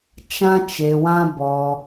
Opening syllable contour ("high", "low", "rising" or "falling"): high